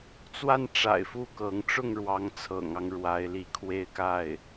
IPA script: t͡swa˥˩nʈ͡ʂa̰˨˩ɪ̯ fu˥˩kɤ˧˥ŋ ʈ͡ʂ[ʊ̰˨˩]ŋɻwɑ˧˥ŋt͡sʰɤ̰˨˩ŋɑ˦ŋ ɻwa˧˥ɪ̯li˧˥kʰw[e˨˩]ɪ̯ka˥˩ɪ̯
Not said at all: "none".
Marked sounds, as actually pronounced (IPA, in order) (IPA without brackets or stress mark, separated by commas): ʊ˥˩, e˥˧